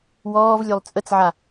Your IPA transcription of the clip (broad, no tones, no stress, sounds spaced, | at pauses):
w ɔː v lʲ ø lˠ t͡sʼ ə t͡s ʕ a